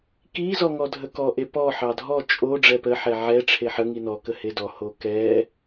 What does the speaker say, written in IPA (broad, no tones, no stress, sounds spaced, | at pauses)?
k i z ɔ ŋ ɔ dʱ ə k ɔ ʔ e p ɔ ħ ɑ dʱ ɔ t͡ʃʼ o ɖ͡ʐ ɛ p ə ħ ɛ ʕ ɛ ʈ͡ʂʰ e ħ ə ŋ i n ɔ k ə h e d ɔ h o k ɛ